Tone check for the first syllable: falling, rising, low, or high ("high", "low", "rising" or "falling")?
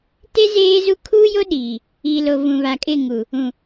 high